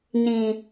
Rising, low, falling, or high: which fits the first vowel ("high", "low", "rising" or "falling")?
low